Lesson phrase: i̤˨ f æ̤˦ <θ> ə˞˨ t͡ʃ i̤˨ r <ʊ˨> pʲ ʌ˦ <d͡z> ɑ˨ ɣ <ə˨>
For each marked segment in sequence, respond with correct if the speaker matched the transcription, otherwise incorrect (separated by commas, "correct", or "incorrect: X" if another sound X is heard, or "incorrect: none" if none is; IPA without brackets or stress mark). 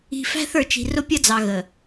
correct, incorrect: ʊ˦, correct, correct